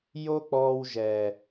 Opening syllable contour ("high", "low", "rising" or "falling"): high